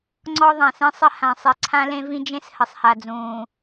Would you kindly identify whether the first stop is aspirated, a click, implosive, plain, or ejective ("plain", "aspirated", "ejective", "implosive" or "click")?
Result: click